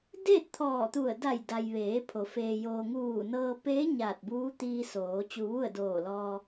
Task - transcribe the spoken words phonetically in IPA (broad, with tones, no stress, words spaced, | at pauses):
deː˥˨t̚t̪ʰɔː˧˩t̪u˧˩ə̯ da˧˩jda˩jʋeː˩˧ pʰo˩˧ feː˩joː˩ ŋuː˧˩nɤː˧ peː˧˥ ɲaː˧˩t̚buː˧˥t̪iː˧soː˩˧ t͡ɕu˧ʋu˥˨ə̯doː˧˩lɔː˧